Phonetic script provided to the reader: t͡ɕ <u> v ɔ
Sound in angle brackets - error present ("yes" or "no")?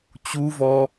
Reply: no